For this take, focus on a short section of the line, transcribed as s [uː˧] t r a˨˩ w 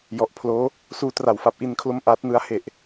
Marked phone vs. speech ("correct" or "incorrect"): correct